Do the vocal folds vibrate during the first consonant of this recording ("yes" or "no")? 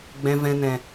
yes